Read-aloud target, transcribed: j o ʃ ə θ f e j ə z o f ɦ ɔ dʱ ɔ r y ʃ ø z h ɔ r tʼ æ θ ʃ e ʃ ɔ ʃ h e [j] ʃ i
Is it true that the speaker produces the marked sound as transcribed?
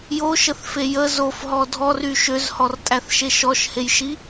yes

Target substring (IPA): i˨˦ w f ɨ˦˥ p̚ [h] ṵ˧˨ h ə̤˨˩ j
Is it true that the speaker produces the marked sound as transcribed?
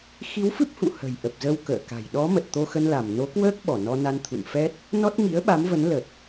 yes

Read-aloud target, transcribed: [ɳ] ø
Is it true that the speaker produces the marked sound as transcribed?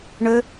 yes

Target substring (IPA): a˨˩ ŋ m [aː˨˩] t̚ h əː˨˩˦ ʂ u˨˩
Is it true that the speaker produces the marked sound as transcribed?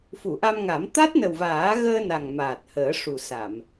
yes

